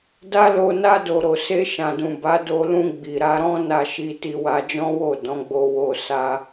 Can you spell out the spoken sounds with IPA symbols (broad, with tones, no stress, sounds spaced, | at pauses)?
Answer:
d a˦ l o˧ n a˧ d o˨ ɾ o˨ s e˧ ʃ ã˨ d ũ˨ b a˨˦ d o˧ l ũ˧ ɡ͡b i˨ ɾ a˧ ɾ ɔ̃˦ n a˧ ʃ i˧ t i˧ w a˧ d͡ʒ ɔ̃˦ w o˦˨ d ɔ̃˨˦ ɡ͡b o˧ w o˧ s a˧